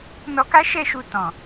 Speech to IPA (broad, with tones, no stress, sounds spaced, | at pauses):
n ɔ˧ k a˦ ʃ ɛ˦˨ ʃ u˧ t ɔ̃˨